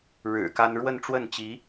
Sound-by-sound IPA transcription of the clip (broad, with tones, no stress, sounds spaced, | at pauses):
ɻ ɻ̩˨˩ k a˥ n ɻ w ə˥˧ n ʈ͡ʂ w ə˥˩ n t͡ɕ i˧˥